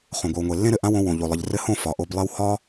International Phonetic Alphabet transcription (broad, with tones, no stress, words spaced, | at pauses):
χõ˨ɡʷɘ˨wŋʷe˨ lːẽ˦ɾɘ˨ʔã˦wõ˧ wõ˨ʎo˨lˠɘ˨ʎ rɘ˧hõ˦˨ fɒ˨ʔo˧blˠe˦w hɒ˦